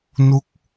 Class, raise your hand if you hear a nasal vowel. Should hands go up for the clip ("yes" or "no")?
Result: no